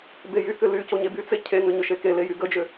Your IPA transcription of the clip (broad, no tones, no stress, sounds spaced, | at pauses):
b e j y k ʏ l y c o ɲ e b y t͡s e cʰ e ŋ ʏ ɲ ʏ ʃ e k e l e j y ɡ ə d͡ʒ ʏ